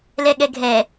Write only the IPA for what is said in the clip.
lɛɠɛɡʱɛ

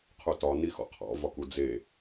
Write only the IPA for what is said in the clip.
qʰutɒ nixɔ̰qʰɔ̰ vɒkud͡ze

